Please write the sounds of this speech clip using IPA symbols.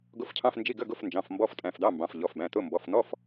ɡʊ˧˥˧fcʰɑ̃˧˥˧fnd͡ʒi˧˥˧ ɡə˧˥˧ɡʊ˧˥˧f nd͡ʒɑ̃˩˧˩f mbɔ˧˥˧ftʼæ̃˩˧˩fd̪ɑ˧˥˧mbɑ̃˩˧˩f ʎɔ˩˧˩fbæ̃˩˧˩tʊ˧˥˧ mbɔ˩˧˩fn̪ɔ˧˥˧f

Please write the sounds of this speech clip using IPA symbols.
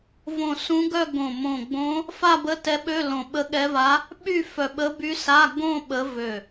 võ˧˩sũ˧˥ɡœ˥˧ ɡõ˧˩ mõ˧˩ɡ͡bõ˧˥ | fa˥˧bə˧˥˧tɛ˧˥ɓø˧˥˧ lõ˧˩ɓə˧˥ɠɛ˧˥va˧˥ | ɓy˥˧ fœ˧˩ɓə˧˥ by˧˥sa˧˥˧ ɡõ˥˧ ɓə˧˥vø˧˩

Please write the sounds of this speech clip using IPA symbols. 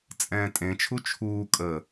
t͡sʼɛ̃ːtʼẽt͡ʃʰu t͡ʃʰuː kʼə

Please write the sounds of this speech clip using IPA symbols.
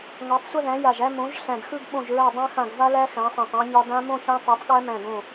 ŋɒ˨˥tˤsʷə˥˧ðæ̃˨˥ ja˧˩ʒæ˥˧mõ˨˥ʒ ɬæ̃˧˩dxɯ˥˧ɡ ɓõ˧˩ʒɹæ˧˩ dˤã˦˥xã˧˩ɡ va˦˥læ˦˥ xæ̃˨˥sˤæ̃˧˩tˤæ̃˦˥ɲɒ˦˥ dã˦˥mõ˥˧çã˦˥ tˤa˨˥tˤɠæ˦˥mæ̃˧˩ ɡõ˧˩

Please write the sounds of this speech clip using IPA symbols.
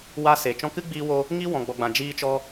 wa˦se˨ t͡ʃɔ̃˧kɨ˦ɡ͡biː˧wo˧ | ŋi˦wɔ̃˨ɡ͡bɔ˨ɡ͡bã˨ d͡ʒiː˧t͡ʃɔ˧

